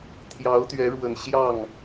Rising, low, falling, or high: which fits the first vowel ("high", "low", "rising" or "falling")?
rising